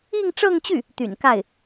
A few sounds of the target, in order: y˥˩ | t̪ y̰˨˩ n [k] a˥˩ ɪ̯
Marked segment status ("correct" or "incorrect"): correct